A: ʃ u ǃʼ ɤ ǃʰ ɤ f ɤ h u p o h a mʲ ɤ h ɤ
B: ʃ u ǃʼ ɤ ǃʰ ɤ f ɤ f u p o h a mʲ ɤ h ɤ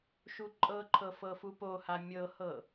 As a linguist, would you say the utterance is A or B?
B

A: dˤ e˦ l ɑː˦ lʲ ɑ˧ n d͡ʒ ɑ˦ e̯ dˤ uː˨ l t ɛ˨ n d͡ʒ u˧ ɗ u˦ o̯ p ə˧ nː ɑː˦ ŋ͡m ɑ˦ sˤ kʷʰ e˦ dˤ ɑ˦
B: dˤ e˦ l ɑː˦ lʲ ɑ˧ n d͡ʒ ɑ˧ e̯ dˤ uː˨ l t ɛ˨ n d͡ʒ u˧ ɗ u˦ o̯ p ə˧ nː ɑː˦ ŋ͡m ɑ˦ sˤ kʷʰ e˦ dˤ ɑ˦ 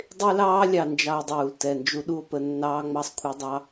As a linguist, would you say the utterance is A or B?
B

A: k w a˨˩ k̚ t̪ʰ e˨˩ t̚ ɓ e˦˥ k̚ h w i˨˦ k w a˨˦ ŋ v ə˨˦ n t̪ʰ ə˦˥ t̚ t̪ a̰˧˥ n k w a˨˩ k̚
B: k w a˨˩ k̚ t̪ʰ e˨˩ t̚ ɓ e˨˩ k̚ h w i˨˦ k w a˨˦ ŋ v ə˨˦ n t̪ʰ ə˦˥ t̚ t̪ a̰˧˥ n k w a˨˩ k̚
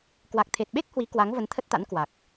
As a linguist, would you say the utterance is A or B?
A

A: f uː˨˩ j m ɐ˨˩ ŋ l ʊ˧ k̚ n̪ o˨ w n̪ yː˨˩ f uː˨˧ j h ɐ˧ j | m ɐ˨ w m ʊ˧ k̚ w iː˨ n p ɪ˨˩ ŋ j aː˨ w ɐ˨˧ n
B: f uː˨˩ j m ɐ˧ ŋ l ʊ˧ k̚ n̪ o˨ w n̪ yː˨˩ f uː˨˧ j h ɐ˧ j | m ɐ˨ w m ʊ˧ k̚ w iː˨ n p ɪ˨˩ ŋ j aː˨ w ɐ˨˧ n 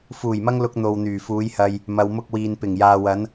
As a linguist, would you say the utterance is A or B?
B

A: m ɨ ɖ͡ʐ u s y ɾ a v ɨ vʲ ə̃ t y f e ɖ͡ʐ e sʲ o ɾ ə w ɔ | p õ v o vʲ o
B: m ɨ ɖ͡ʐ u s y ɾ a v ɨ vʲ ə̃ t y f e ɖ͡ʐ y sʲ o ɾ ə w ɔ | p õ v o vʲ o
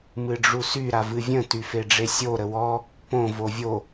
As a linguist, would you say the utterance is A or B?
A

